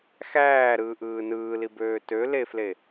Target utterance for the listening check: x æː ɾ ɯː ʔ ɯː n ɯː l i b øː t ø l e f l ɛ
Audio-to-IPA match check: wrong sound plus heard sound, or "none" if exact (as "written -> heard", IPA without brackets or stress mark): ɛ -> e